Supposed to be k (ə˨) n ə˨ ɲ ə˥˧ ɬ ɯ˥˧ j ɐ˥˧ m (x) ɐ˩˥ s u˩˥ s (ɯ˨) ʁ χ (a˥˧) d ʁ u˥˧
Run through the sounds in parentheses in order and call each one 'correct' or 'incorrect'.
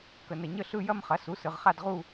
correct, incorrect: χ, correct, correct

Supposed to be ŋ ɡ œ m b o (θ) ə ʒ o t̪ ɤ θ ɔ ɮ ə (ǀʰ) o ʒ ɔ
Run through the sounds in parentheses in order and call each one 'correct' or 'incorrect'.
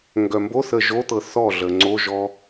correct, incorrect: ŋ͡ǀ

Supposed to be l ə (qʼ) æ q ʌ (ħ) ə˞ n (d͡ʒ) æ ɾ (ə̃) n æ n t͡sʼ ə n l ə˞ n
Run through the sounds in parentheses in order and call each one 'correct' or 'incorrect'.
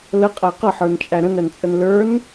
correct, correct, incorrect: t͡ʃʼ, correct

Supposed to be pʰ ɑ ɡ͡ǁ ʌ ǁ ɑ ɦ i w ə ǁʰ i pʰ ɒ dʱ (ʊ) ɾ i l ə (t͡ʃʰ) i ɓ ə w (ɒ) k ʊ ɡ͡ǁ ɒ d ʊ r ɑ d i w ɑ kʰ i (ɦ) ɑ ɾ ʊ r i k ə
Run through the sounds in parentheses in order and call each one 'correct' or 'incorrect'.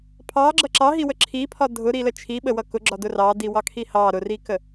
correct, correct, incorrect: ʌ, incorrect: h

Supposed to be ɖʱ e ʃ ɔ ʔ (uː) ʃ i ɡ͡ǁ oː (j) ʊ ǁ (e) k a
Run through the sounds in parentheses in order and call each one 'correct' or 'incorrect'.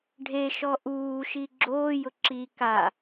correct, correct, incorrect: i

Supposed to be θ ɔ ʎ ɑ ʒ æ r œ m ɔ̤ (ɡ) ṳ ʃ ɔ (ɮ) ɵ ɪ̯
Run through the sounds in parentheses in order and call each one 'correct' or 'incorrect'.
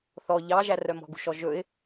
correct, incorrect: ʒ

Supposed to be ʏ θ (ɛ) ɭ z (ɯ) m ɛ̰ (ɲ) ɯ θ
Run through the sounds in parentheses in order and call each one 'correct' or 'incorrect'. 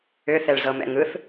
correct, incorrect: ɤ, incorrect: ŋ

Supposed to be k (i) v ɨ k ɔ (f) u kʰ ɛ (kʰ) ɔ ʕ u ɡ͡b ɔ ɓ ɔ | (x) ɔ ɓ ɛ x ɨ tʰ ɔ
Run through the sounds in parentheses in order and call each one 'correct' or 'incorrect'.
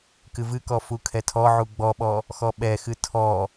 incorrect: ɨ, correct, incorrect: tʰ, correct

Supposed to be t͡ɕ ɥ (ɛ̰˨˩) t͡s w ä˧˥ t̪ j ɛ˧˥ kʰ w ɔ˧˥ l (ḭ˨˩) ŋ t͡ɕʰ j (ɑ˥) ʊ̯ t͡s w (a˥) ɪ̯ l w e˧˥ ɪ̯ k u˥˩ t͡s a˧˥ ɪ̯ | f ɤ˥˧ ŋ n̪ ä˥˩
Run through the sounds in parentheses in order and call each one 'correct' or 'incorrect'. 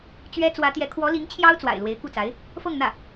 incorrect: ɛ˥, incorrect: i˧˥, correct, incorrect: a̰˨˩

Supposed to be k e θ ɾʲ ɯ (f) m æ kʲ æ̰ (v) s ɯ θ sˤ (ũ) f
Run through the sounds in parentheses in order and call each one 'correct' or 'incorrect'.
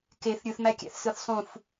incorrect: θ, incorrect: θ, correct

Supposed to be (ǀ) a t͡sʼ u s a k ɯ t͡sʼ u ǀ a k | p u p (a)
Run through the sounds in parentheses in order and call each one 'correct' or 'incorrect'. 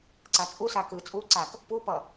correct, incorrect: ʌ

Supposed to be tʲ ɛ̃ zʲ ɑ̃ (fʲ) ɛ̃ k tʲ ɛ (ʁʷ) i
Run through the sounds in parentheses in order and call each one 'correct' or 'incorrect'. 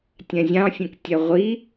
correct, correct

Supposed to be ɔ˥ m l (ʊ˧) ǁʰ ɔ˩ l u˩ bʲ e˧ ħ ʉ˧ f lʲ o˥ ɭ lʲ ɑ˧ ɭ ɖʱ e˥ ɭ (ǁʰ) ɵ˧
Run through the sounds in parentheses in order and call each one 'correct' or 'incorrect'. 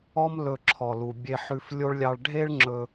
incorrect: ɵ˧, incorrect: ŋ͡ǁ

